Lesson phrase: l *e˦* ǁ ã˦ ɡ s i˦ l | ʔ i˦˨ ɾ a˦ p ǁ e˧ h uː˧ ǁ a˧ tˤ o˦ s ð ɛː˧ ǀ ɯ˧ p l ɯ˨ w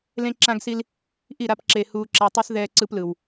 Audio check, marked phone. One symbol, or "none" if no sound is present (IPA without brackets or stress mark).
ẽ˦